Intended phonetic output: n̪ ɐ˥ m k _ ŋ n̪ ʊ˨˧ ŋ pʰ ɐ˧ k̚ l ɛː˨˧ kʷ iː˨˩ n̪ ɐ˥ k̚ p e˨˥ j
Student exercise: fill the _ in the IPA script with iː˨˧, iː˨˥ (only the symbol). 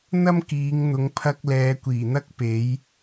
iː˨˧